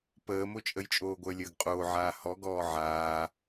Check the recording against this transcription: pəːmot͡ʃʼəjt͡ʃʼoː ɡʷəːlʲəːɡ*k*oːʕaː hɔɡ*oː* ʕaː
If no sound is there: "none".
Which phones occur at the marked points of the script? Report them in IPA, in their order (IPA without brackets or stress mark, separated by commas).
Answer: qʼ, ɔː